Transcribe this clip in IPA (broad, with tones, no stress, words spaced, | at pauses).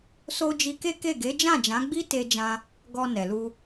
so˧ d͡ʒi˧ke˦ke˦˨ ɡe˨˦d͡ʒã˦˨d͡ʒã˨˦ɡ͡bi˦ te˧d͡ʒã˧ | ɡɔ˧nɛ˨lu˧